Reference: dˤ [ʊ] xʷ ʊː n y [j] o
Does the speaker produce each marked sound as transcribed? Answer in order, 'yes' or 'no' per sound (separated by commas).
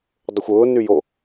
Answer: yes, yes